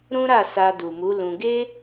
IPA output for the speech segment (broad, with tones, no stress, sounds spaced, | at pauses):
ɾ ũ˦ ɾ a˦˨ s a˧ d u˨ m u˨˦ l ũ˧ ɡ e˦